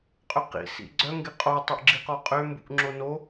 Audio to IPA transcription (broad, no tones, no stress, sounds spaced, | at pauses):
qʼ ʏ q ḭ s ḭ ɡ͡ǀ œ ŋ ɡ ɪ qʼ o tˤ ø ʔ ɡ͡ǁ i q ɔ qʼ ø m b ṵ ʔ ŋ͡ǁ o n o